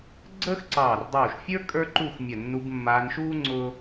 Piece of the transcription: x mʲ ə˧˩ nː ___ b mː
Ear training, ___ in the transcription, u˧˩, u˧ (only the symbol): u˧